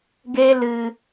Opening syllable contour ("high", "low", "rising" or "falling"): high